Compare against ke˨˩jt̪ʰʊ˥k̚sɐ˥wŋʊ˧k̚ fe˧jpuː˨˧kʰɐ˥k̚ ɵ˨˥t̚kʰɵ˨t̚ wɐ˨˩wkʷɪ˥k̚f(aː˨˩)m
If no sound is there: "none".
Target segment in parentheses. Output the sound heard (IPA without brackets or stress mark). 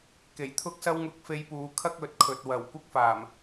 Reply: aː˨˩